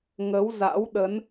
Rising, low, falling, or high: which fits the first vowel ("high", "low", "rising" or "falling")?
rising